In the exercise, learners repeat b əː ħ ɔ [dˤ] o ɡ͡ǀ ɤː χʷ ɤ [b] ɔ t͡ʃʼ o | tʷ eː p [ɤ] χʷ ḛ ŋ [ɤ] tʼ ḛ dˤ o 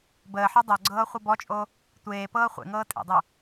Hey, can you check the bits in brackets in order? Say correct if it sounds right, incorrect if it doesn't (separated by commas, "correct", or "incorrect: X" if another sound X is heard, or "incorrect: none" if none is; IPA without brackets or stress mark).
correct, correct, incorrect: ɤː, incorrect: ɤː